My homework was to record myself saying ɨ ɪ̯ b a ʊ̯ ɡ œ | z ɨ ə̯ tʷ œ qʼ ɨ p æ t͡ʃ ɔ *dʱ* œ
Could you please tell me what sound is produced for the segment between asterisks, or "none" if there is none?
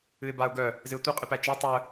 tˤ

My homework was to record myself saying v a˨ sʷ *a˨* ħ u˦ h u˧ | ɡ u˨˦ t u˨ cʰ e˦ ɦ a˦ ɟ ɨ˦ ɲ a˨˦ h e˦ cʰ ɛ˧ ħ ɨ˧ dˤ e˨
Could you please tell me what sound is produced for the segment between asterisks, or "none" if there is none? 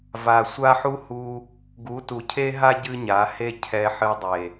a˦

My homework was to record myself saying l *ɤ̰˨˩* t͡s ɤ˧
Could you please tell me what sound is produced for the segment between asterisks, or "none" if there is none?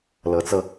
ɤ˨˦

